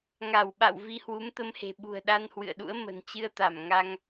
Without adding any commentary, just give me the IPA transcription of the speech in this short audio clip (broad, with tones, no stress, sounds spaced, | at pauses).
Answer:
ŋ a˧˩ w ɓ a̰˧˨ w v i˧ h w u˨˦ m t̪ ə˧ m h e̤˨˩ ɓ ṳ˨˩ ə̯ ɗ a˧ n h w ɨ̰˧˨ ə̯ ɗ ṵ˧˥ ə̯ m ə̤˨˩ n t͡ɕ ɨ˧ ə̯ t̪ a˧˩ m ŋ a˧ ŋ